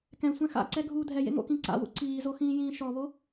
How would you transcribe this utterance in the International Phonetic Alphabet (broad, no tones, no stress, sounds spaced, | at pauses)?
k ɛ̃ sʷ ɛ̃ x a̰ ǀ ɛ ɡʱ uː dʱ ɛ j ḛ ŋ o̰ k ĩ ǀ a̰ w ṵ ǀ iː z o x ĩː j ĩː ʃ ɔ β o